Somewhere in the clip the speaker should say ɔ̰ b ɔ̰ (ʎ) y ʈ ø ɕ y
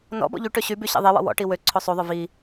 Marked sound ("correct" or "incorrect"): correct